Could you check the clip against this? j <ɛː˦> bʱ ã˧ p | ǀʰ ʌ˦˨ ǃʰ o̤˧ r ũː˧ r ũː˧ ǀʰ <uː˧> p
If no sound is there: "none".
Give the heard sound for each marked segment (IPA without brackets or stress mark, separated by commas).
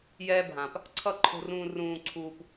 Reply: ɛː˦, uː˧